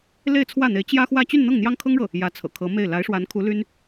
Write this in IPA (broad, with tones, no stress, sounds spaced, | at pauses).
l e˥˧ ɪ̯ t͡sʰ w ä˥˩ n̪ e˧˥ ɪ̯ t͡ɕ j ä˥ x w ä˥˧ t͡ɕ y˥˧ n n̪ ɤ˥˩ ŋ n̪ j ɑ˥ ŋ kʰ ɤ˥ ŋ ɻ ɤ˥˩ | j ä˧˥ t͡sʰ ɤ̰˨˩ kʰ ɤ˧˥ m e˥˩ ɪ̯ l a˧˥ ɪ̯ ʂ w a˧˥ n kʰ u˧˥ l y˥ n